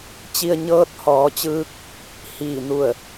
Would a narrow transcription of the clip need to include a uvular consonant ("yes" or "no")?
no